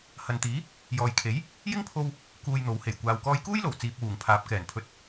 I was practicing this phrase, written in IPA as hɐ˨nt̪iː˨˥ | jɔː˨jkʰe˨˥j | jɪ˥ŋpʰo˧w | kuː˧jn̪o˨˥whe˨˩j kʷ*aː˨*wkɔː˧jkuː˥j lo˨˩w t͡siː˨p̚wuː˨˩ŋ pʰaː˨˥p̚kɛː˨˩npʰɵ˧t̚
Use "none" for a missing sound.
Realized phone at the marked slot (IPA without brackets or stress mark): aː˨